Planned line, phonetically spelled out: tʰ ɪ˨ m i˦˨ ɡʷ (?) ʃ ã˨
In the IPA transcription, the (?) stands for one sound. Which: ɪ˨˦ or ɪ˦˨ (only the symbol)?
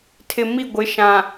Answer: ɪ˨˦